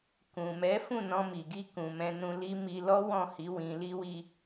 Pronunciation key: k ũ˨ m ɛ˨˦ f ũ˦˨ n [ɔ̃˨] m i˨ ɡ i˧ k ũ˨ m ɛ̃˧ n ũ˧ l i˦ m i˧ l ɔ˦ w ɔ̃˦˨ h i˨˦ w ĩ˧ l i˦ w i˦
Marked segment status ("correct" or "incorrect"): incorrect